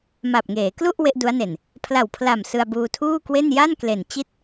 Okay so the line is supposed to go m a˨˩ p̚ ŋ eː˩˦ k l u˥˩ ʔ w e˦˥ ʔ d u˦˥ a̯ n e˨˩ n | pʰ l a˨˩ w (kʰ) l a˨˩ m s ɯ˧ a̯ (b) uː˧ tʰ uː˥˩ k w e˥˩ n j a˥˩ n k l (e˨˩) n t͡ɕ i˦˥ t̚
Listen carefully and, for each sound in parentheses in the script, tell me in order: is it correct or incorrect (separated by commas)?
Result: incorrect, correct, correct